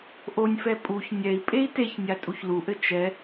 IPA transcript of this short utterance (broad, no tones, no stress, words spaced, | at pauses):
ʔonʲfɛ pʼuç nʲɛi̯ pʼei̯teçnʲa tʼuçluʔɘ t͡ʃɛ